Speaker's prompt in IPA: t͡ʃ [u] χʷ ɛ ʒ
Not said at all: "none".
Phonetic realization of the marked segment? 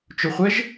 ʊ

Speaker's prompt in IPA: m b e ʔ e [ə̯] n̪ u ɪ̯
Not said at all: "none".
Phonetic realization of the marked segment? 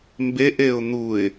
ʊ̯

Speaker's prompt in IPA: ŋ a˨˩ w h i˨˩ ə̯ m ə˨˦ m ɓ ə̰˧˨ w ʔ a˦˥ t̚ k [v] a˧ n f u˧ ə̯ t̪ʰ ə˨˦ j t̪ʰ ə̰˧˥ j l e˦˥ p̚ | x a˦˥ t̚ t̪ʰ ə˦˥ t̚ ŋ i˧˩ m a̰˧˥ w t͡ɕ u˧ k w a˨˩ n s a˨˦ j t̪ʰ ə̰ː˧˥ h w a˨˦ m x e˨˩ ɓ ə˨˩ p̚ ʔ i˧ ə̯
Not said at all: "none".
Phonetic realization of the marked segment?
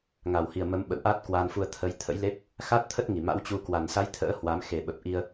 w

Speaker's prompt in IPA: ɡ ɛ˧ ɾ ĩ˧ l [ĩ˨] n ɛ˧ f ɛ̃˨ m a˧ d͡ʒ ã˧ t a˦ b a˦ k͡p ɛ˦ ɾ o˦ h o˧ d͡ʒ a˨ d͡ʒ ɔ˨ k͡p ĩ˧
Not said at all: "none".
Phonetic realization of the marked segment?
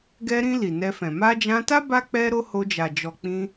i˨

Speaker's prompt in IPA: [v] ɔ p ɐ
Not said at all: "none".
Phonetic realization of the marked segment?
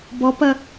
b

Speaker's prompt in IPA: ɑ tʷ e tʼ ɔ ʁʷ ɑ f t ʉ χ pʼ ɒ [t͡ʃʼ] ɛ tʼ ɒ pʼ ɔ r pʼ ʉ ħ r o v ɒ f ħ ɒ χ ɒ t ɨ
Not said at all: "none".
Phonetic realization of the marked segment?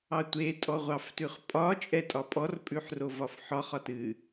t͡ʃʼ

